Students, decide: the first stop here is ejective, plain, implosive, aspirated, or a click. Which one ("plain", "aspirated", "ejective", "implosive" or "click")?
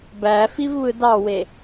plain